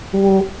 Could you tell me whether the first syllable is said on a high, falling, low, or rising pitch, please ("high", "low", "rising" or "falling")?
high